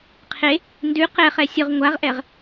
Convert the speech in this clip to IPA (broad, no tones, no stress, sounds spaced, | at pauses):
qʰ e | n d ʉ q ɛ χ ɛ sʲ ʊ ʁ ŋʷ a ʁ ʔ ɛ ʁ